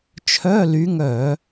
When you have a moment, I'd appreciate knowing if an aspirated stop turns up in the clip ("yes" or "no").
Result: yes